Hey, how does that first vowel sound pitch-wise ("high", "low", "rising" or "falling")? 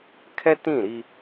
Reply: high